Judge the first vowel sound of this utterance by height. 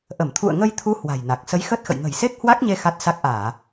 mid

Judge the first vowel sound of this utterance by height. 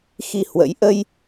high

